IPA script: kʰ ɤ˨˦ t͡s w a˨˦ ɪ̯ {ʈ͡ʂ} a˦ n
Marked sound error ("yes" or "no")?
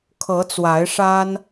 yes